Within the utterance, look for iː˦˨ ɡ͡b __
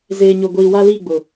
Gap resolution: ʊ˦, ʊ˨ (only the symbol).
ʊ˨